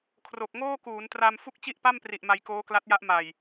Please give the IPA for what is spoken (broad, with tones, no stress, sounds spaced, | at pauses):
kʰ r o˨˩ k̚ ŋ oː˥˩ k uː˩˦ n t r a˧ m f u˥˩ k̚ t͡ɕ i˥˩ ʔ p a˥˩ m p r i˨˩ ʔ m a˧ j k oː˦˥ k l a˦˥ t̚ j a˦˥ ʔ m a˨˩ j